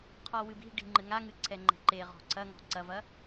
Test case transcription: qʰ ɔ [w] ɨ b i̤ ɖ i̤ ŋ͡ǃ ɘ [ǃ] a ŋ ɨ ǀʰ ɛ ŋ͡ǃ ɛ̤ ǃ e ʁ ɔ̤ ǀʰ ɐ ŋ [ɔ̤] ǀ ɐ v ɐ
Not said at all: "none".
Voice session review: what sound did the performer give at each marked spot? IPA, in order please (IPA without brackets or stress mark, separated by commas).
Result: w, ŋ, ɔ̤